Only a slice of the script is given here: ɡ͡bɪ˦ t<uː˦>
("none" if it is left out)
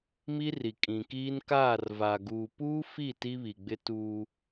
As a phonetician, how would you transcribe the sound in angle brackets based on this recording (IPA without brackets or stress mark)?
uː˦